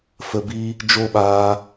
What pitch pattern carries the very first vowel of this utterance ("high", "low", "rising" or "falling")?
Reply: low